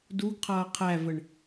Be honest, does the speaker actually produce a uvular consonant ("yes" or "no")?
yes